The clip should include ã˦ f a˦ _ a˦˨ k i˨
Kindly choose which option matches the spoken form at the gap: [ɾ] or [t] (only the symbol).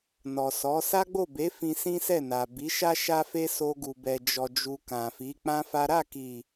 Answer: ɾ